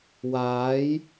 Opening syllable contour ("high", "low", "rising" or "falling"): rising